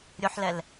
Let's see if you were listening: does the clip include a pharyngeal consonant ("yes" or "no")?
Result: yes